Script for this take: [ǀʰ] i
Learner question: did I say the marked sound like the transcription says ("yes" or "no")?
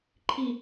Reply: no